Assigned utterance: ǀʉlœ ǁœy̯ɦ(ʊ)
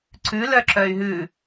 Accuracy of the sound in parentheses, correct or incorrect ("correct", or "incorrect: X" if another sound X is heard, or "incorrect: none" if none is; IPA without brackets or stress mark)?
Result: incorrect: ʉ